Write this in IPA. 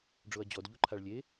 ɖ͡ʐ o ɐ̯ d͡ʑ ɔ d ʎ u ǃʰ a ɭ lʲ e

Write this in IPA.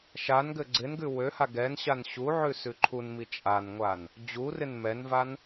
ʃ a n ɡ ɘ ɡ͡ǀ ɪ n ɡ ʉ w ø h a ɡ ɛ n ɕ a n ɕ u ʕ ʉ s ʉ ǃʰ u n m i t͡ʃʼ a n ŋʷ a n | d͡ʑ u r ɪ n m ɛ n v a n

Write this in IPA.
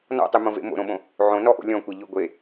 n ɔ̰ tˤ y m õ v ḛ m o̰ ɾ õ ɓ õ | ʕ õ n ɔ ʔ o̰ lʲ ɔ̃ kʷ e ʎ y ɡʷ e

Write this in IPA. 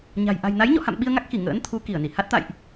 ɲ a̤˨˩ j ʔ a̤˨˩ j n a˨˦ j ɲ ɔ̰˧˨ h a̰˧˨ m ɓ i˧ ə̯ ŋ a˦˥ k̚ x i˧˩ ŋ ə̰ː˧˥ n t̪ʰ u˨˦ k i˧˩ ə̯ n i˧˩ h a˦˥ t̚ t̪ a̰˧˨ j ʔ

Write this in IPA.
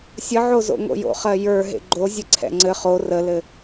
sʲ ə ʕ o z o̰ ŋ o̰ j o̰ χ ɜ j ə˞ ɦ ḛ ɡ͡ǃ o zʲ ə ǀʰ ɛ̰ ŋ͡ǀ ɘ χ o r ə l ɘ

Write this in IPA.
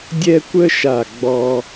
dʲ ɛ˥ kʷ ə˥ ʃ a˧˩ ɡ͡b ɔ˧

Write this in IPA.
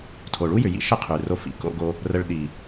tʰ o˨ ɭ u˦ j ʏ˨ j ḭ˧ ʃ ə˦ qʰ ʉ˨ r o˧ f ḭ˨˦ k o̰˧ ɡ o˧ | r ə˧ ɭ ɗ i˨

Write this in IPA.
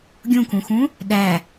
ɡʲ ũ k ũ x ũ | ɗ æ

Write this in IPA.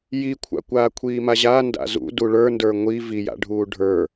j i kʷʰ a̰ kʷ aː kʷʰ iː m a ʑ a n d a̰ z ṵ d u ɭ ə˞ n d ə˞ ŋʷ i v i j a̰ ɖʱ uː ɖʱ ə˞

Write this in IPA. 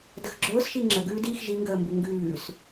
d ə x ɡ͡ǁ ʊː s ʃ i ŋ͡ǁ ə ɡ ʉː d iː x ʒ i ŋ ɡ əː m b u ŋ ɡ ʉː s

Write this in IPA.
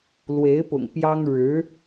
l w e˧˥ ɪ̯ p ʊ̰˨˩ ŋ p j ɑ˥ ŋ ɻ ɻ̩˧˥

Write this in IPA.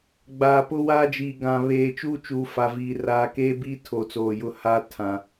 ɡ͡b aː˨ p ʊ˦ w aː˦ d͡ʒ iː˨ ɡ ã˨ β eː˨ t͡ʃ uː˦ t͡ʃ uː˨ f a˨ v iː˨ r aː˨ k eː˦ b iː˦ tʰ o˨ t͡s oː˨ j ʊ˦˨ h aː˦ tʰ ã˨

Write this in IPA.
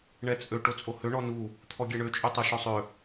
ɳ ɛ t͡sʼ ø ʈ o t͡sʼ o h ø ɳ ɔ n u | t̪ʰ ɔ ɡʲ ɛ ɳ ø t͡ʃʼ y tˤ o ʃ ɔ sˤ ø

